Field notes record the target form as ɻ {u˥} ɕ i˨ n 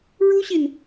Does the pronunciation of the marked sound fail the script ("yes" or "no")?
no